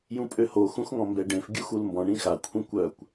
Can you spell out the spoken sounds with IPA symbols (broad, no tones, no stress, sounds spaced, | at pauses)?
j ũ pʼ ø h o x ũ x ŋ ɔ̃ m b ɛ ɖ ẽ f ɡʲ u x u l m b ɔ̃ ɳ ĩ x a kʷʰ ĩ kʷ œ kʷ